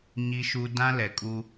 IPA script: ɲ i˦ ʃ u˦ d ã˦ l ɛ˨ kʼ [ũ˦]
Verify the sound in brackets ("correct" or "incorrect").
incorrect